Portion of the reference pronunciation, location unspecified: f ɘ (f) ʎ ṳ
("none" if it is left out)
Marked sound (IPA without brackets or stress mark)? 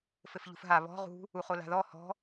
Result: f